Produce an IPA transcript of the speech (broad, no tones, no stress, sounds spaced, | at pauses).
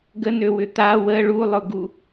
ɡ ə n ø w ʏ t̪ a w ə ɭ u lˠ ʊ ɡ u